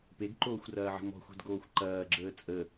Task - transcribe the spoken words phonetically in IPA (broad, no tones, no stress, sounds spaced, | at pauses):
p e ɡ ǃ oː xʷ r ɐː ʕ ə̤ m ɔ̤ xʷ ɛ̤ d ɡ oː xʷ ǃ ɐː ɡ͡ǁ əː t͡sʼ ə